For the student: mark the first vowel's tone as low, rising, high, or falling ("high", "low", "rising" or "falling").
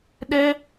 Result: high